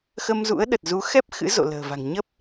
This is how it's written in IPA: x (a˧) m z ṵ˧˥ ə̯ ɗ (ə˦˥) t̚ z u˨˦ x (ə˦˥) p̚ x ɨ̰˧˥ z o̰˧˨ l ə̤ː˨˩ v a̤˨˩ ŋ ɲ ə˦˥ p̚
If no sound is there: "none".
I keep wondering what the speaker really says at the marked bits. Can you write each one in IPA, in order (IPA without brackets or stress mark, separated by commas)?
ə˧, ə˨˩, ɛ˦˥